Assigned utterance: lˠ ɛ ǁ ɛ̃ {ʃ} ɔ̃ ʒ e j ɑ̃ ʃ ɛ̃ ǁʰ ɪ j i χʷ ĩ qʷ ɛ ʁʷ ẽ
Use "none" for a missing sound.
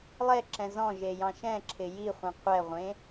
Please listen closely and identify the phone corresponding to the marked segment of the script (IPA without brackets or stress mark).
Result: z